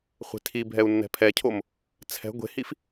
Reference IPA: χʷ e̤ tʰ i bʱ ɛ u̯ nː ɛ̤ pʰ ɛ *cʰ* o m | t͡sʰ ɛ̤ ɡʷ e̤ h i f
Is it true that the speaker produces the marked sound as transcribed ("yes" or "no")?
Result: yes